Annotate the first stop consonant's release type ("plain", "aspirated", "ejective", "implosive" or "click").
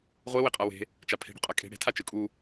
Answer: ejective